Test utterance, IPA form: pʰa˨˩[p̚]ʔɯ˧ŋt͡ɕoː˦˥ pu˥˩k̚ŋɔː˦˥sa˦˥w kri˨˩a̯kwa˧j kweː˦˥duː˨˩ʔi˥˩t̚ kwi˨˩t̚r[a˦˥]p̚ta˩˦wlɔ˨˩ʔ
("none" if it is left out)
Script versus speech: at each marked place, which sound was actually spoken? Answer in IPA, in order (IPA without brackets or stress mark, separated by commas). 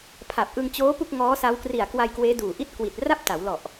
p̚, a˥˩